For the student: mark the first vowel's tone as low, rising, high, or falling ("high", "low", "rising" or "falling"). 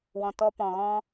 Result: low